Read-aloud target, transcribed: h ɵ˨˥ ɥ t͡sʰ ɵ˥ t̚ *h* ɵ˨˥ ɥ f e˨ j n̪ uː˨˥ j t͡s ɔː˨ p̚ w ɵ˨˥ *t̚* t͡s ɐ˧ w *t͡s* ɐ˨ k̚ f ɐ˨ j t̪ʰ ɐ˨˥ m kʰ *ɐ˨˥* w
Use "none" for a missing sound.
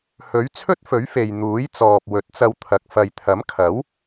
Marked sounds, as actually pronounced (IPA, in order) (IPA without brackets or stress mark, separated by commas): f, t̚, t̪ʰ, ɐ˨˥